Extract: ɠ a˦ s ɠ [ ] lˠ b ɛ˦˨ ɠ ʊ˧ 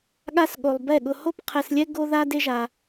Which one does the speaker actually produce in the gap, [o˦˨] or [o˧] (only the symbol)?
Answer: o˧